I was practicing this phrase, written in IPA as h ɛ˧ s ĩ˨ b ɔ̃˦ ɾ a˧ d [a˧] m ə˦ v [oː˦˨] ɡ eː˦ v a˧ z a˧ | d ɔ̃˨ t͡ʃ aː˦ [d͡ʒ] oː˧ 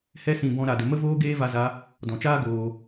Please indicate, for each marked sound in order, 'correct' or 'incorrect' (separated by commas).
incorrect, incorrect, incorrect